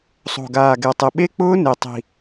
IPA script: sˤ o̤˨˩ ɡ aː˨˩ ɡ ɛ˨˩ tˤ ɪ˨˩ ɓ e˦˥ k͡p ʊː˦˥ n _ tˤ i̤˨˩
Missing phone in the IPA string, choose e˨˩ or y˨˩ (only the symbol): e˨˩